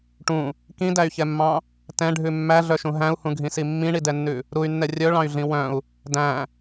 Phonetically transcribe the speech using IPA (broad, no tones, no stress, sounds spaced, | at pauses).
ʈ ũ | k ĩ d æ y̯ ç ɛ mː ɑ̃ | t ɛ̃ ɖʱ ʉ mː æ ɮ œ ʃ ũ ɦ æ̃ u̯ h ũ ɡʱ ĩ s i mː ĩ ɳ i d ɛ nː ʉ | ɾ u y̯ nː ɛ rʲ œ ɭ ɑ̃ y̯ ɮ ĩ w œ̃ u̯ | d æ̃